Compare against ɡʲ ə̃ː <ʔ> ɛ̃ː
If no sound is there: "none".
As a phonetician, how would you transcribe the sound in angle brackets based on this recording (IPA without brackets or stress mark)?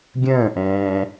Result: ʔ